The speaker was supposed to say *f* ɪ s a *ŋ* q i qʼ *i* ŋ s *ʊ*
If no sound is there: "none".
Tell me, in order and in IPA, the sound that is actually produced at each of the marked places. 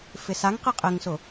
f, ŋ, ɪ, ʊ

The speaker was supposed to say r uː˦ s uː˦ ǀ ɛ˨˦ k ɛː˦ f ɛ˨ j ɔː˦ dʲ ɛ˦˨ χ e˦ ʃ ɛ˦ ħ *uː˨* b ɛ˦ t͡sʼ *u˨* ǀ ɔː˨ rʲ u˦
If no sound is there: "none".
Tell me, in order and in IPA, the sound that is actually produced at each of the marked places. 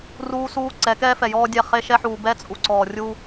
uː˨, u˨

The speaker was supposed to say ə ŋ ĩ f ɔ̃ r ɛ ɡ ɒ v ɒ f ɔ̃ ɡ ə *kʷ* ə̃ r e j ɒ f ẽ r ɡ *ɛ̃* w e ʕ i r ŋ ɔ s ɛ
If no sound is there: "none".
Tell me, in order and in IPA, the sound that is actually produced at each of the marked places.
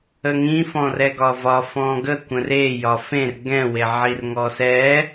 kʷ, ɛ̃

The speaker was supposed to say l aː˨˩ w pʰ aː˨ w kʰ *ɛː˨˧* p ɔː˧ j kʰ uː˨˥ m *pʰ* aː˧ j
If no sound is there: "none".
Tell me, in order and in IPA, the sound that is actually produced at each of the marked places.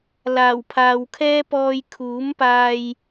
ɛː˥, p

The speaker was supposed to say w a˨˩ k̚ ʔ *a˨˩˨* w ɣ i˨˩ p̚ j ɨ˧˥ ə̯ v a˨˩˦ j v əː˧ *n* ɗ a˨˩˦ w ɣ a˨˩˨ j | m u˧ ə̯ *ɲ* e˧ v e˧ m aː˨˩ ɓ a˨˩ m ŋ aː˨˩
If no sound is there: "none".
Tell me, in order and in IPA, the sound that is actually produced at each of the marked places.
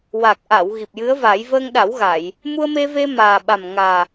a˨˩˨, ŋ, m

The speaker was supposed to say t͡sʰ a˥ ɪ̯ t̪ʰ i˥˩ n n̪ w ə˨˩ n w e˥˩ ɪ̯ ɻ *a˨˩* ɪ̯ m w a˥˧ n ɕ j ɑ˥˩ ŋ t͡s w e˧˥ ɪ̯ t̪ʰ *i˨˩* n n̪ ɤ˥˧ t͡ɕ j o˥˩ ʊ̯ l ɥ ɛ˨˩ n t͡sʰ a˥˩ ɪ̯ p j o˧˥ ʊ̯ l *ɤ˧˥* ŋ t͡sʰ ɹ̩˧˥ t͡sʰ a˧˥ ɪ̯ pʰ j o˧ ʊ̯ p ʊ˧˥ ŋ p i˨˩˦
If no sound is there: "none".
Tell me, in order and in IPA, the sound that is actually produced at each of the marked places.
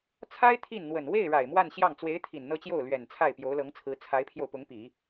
a˨˩, i˨˩, ɤ˧˥

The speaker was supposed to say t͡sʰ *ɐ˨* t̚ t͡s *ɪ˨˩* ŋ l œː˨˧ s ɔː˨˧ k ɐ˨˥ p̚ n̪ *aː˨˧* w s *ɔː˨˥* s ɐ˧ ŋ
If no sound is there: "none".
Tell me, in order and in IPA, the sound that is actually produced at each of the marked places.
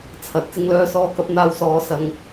ɐ˨, ɪ˨˧, aː˧, ɔː˨˥

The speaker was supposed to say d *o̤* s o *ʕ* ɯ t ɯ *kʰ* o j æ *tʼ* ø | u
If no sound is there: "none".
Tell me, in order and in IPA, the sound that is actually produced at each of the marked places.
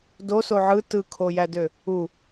o, ʕ, kʰ, d

